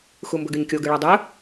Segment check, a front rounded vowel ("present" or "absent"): present